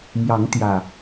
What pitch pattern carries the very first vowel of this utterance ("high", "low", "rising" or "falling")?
rising